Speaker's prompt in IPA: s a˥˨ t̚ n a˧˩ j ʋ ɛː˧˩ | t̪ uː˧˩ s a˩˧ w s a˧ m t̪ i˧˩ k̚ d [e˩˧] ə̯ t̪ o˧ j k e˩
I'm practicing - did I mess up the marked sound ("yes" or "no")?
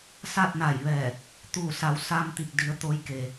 yes